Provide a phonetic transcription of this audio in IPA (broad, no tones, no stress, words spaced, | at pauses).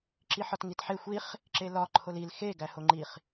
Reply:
ǁiħɒtŋitħe xʷiχ | ǁelɒ ǃʰolil xe ɡæhoŋ͡ǃiχ